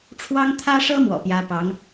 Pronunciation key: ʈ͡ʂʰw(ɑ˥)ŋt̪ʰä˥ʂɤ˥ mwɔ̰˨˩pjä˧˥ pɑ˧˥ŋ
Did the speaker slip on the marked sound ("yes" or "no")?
no